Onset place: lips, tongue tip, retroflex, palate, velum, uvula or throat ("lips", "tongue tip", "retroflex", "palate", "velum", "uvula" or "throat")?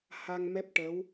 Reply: throat